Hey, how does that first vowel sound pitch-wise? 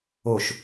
low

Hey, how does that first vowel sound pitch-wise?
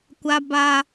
high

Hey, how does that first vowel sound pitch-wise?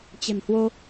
low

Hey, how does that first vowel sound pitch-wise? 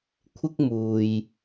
high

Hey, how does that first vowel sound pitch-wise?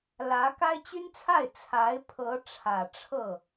rising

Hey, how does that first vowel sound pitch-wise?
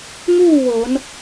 falling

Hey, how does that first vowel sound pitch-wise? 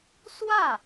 falling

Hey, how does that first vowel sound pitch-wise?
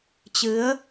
rising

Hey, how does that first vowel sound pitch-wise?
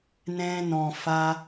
high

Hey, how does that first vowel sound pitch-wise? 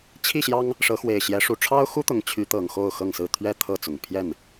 falling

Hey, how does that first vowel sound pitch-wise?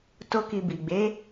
high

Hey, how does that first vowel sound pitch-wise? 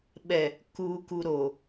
low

